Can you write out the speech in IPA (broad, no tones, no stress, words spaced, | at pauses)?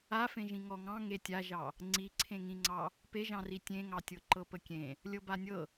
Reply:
afẽʒĩ ŋɔŋɑ̃ ŋetʲaʒɑ | ŋ͡ǀiǀʰẽŋĩŋ͡ǀɑ | peʒɑ̃ri tʲẽŋɑtʲɤ ǃɤpəkʲẽ | lʲɤbanʲɤ